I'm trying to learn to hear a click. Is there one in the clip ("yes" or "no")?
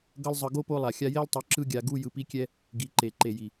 yes